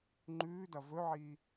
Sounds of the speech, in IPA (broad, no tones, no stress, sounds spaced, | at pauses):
ŋ͡ǃ ʉː d ɐ v ɵ ʕ iː